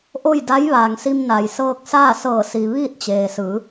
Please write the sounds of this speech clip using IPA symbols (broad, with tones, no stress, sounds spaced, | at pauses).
ʔ o˥˨ j d a˧˥ j ʋ aː˩ ŋ s i˧ m n a˩ j s ɤː˧ k̚ s aː˥˨ s ɤː˧˩ s i˩ ʋ iː˥˨ t̚ t͡ɕ eː˩ s ɯː˩˧